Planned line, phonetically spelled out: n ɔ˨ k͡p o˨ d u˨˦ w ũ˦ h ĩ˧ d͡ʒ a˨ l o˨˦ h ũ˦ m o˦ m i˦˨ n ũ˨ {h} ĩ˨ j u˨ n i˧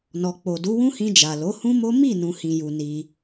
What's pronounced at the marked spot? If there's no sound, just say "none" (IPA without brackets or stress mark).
h